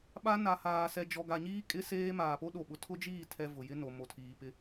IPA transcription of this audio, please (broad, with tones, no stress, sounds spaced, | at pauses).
ɓ a˦ n a˨ h aː˨ s ɛ˨ d͡ʒ ɔ˨ ɡ a˨ ɲ iː˦ kʼ ɪ˦ s eː˦ m aː˨ p o˦ ɗ o˨ ɓ ʊ˨ tʰ ʊ˦ d͡ʒ iː˦˨ tʰ ɛ˨ v ʊ˨ j ɪ˦ n o˨ m o˨ tʰ iː˨ p ɪ˦